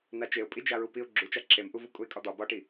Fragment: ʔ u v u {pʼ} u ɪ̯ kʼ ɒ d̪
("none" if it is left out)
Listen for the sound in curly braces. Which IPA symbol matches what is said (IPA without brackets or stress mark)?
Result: kʼ